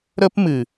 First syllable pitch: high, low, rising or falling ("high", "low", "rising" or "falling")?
high